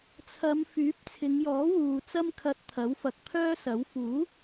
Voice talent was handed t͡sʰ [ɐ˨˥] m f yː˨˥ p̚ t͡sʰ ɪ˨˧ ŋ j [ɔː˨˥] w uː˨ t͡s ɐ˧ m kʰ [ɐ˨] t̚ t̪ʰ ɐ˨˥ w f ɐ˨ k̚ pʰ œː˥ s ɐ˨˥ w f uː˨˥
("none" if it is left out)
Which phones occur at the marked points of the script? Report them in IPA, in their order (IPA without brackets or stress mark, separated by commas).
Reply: ɐ˨˧, ɔː˨˥, ɐ˨